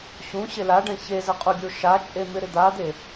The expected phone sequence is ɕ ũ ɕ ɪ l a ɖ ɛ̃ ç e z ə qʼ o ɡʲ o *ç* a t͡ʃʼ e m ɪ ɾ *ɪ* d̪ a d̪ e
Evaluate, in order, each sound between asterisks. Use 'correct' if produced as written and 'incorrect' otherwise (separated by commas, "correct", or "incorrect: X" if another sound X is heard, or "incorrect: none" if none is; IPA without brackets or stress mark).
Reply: incorrect: ʃ, correct